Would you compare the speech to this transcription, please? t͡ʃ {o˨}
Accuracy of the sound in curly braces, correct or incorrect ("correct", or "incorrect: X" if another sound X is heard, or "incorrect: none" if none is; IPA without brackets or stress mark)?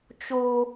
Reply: incorrect: o˦